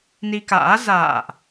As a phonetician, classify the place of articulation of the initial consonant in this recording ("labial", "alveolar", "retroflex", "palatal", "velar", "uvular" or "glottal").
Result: alveolar